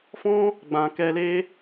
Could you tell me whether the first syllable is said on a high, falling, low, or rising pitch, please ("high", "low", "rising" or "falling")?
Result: high